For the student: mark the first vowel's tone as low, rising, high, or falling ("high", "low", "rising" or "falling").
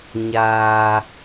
low